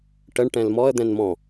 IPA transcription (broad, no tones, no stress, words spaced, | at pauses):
ʈəɳ ʈɛ̃lmɔə̯ d̪ɛ̃nmɔ̃